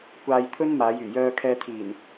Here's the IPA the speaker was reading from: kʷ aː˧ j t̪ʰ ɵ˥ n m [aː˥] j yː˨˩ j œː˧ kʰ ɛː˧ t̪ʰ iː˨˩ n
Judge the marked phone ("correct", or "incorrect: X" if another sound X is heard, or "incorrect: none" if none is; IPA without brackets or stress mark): incorrect: aː˨˧